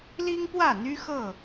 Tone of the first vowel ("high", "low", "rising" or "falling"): high